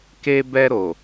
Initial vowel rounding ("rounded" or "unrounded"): unrounded